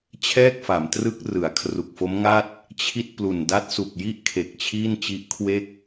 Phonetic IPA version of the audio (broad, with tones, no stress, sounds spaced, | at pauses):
t͡ɕʰ ɛː˥˩ k̚ f a˩˦ m t r ɯ˦˥ k̚ r ɯ˩˦ a̯ kʰ r u˨˩ k̚ f o˦˥ m ŋ a˥˩ t̚ | t͡ɕʰ i˥˩ t̚ p l u˨˩ n d a˦˥ t̚ s u˨˩ k̚ j i˥˩ ʔ kʰ e˨˩ k̚ t͡ɕʰ iː˥˩ n t͡ɕ i˦˥ ʔ kʰ w e˥˩ k̚